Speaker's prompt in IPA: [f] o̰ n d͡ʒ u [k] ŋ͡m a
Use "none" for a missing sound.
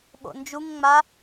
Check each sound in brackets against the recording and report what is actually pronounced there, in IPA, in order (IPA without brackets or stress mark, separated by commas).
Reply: ɓ, ŋ